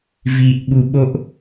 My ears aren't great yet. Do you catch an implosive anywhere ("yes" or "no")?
yes